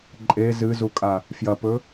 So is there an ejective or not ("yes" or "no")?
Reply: yes